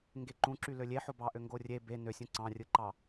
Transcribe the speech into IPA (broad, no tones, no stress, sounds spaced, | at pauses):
ŋ ɡ e ǃ ũ ǁ y l ø lʲ e ħ o b ɑ ʔ ø ŋ ɡ o rʲ e b e n ø sʲ ũ ǀ ɑ̃ rʲ ɯ ǃ ɑ